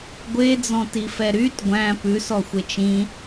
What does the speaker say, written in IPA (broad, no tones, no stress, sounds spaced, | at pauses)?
ɡʷ e d͡z ɔ̃ t i f ɛ ɾ y t ɡʷ æ̃ p ʉ s ɔ xʷ e t͡ʃ ĩ